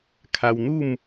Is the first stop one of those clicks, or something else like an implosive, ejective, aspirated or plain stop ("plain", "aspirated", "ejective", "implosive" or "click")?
aspirated